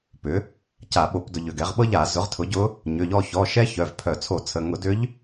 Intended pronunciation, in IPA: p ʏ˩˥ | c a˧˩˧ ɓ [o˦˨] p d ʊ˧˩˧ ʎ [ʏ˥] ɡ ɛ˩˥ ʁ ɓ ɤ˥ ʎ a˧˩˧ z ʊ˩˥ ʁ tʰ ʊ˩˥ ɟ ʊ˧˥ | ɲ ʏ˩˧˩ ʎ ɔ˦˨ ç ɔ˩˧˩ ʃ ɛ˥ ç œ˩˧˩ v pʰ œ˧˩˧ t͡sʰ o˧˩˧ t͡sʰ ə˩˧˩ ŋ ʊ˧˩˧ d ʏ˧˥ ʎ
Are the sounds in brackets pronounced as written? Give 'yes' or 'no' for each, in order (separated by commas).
no, no